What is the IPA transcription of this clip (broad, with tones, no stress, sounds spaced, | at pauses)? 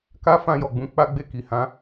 k a˦ f ã˧ j ɔ˨ ɡ͡b ũ˨˦ k͡p a˦ ɡ͡b e˦˨ k i˨ h ã˨˦